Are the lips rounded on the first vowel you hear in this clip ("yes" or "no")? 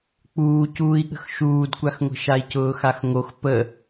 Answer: yes